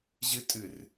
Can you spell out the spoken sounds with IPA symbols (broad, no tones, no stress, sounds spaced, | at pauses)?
ʑ ɨ tʼ ɨ r